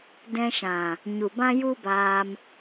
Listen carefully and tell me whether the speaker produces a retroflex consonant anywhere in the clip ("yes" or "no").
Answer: no